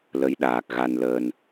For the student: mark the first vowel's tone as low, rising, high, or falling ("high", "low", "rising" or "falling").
rising